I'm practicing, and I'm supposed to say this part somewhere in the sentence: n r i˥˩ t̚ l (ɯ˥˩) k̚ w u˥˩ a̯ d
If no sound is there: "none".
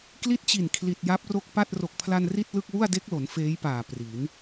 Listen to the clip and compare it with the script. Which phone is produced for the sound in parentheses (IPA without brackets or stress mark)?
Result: ɯ˥˩